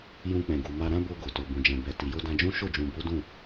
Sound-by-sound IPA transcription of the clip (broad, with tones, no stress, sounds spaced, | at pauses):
j ũ˧ k͡p ɛ̃˨ ɡ u˨ m a˧ ɾ ã˦ b o˧ ɡ o˨ t o˨ b ũ˨ d͡ʒ ɛ̃˨ b ɛ˨ t i˨ j o˧ d ã˧ d͡ʒ ũ˦ ʃ o˦˨ d͡ʒ ũ˨ b o˨˦ d ũ˦˨